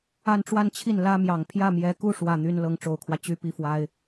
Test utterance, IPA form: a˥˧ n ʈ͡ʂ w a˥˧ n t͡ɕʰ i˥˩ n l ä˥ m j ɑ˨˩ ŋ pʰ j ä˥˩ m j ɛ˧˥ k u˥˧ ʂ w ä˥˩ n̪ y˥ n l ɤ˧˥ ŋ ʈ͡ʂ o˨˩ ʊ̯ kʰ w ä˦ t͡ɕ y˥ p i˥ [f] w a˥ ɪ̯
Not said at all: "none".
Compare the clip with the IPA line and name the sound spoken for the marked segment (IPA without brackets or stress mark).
f